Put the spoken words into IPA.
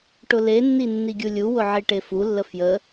ʈ ʊ l e nː i nː i ɡʲ u lʲ u w ʊ ʕ i ʈ e f u lː ə f j ə

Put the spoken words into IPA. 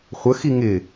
χʷ ə x i ŋ ɪ

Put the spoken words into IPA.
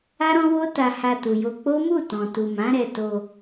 a˦ ɾ ɔ̃˦ w o˦ t a˧ h a˧ t u˨ j o˧ k͡p o˦ m u˦˨ t ɔ̃˨ t u˨ m ã˨˦ ɾ ɛ˧ t o˧

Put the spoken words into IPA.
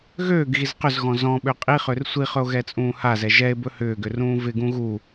ɣ øː ɡ ɣ i z q ʏ z ɣ ɔ̃ z ɔ̃ ɓ ø qʼ i χ ø r sʷ i χ ɵ o̯ ɣ ɛ t͡sʼ ũː h a z ɛ ʒ ɛ e̯ b ɵ h ʏː ɡ ʏ r ũː v ɪ ɡ ũ ɣ u

